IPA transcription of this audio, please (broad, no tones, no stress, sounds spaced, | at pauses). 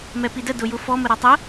m ɛ p i d ə d ʊ j ʊ f ɔ m ə ɾ ɔ tˤ ə